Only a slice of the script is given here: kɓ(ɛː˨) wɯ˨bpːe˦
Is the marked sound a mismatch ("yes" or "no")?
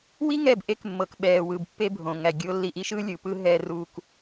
no